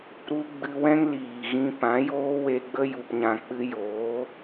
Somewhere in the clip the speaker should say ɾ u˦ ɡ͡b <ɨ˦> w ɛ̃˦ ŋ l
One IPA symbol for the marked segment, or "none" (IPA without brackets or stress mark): ɨ˧